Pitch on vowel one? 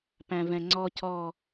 low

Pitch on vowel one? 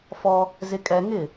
high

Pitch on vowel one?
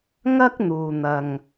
high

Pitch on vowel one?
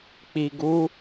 low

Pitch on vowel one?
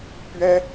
high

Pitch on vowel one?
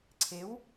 rising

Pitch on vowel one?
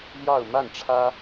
falling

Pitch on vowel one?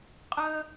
high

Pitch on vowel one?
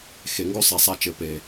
low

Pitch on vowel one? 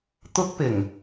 high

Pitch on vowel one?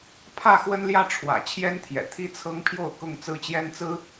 falling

